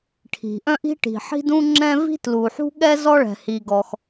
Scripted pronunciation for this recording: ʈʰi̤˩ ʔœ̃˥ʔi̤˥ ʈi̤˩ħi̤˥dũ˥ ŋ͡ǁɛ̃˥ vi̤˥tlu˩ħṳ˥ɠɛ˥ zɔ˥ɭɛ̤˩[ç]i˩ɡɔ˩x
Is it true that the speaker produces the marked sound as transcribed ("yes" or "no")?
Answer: no